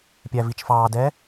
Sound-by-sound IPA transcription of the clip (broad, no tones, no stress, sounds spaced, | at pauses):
pʲ æ v i t͡ʃ f ɑː d ɛː